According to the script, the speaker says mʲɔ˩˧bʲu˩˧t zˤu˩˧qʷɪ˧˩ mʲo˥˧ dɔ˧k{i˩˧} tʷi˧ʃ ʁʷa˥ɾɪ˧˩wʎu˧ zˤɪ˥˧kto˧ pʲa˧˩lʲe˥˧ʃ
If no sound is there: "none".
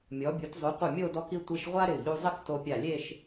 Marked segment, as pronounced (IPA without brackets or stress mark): i˧